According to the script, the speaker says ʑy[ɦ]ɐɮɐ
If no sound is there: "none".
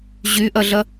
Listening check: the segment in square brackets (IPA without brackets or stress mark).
ʔ